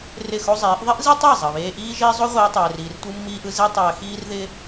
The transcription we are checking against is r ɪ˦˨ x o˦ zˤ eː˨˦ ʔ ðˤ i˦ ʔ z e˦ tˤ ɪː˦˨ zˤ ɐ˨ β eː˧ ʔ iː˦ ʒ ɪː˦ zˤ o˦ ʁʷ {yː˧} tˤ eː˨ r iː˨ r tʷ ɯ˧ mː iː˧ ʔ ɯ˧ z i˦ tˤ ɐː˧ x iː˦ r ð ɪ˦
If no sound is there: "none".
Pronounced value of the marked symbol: iː˧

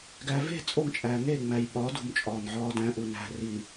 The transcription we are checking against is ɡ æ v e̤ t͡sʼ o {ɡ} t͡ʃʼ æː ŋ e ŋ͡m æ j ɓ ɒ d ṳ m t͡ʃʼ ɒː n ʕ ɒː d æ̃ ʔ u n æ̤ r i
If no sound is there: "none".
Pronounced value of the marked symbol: ŋ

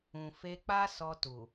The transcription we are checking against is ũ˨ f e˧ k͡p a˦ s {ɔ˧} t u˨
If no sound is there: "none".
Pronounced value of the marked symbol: ɔ˧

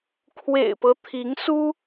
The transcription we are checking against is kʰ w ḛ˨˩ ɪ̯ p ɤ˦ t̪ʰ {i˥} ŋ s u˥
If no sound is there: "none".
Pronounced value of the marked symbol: i˧˥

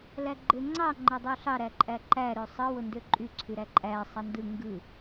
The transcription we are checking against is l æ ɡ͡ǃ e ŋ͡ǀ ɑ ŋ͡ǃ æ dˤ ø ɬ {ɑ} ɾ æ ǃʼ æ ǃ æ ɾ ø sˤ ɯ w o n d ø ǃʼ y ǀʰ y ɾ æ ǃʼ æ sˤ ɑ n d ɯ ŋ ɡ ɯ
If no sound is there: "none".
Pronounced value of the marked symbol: ɑ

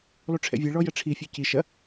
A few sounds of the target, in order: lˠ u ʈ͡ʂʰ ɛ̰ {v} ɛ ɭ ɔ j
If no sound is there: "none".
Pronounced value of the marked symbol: vʲ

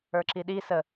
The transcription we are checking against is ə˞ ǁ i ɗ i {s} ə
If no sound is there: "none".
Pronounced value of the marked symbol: s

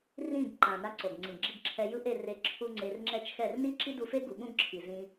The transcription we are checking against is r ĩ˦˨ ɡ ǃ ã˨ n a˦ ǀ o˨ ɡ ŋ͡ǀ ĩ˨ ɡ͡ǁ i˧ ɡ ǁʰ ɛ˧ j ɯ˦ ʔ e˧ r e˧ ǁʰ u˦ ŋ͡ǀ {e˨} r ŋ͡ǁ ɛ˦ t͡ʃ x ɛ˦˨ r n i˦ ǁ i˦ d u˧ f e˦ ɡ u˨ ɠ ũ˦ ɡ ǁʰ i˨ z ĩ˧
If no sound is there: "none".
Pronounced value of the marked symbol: e˧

